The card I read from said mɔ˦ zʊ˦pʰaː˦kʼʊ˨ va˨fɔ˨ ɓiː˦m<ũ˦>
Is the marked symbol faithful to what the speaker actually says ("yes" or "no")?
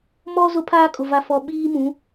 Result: no